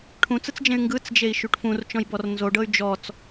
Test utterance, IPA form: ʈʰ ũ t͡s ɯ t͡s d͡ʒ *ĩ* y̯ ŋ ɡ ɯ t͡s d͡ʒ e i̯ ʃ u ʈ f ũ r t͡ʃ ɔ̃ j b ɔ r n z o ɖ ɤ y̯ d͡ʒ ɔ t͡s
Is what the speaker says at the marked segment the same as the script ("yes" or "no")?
no